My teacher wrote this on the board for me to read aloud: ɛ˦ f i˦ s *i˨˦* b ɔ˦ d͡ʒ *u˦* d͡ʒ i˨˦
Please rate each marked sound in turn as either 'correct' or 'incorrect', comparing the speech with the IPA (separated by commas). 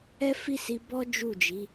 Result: incorrect, incorrect